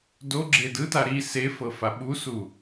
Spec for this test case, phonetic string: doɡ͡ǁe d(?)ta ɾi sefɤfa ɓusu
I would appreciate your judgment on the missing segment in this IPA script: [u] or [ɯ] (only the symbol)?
ɯ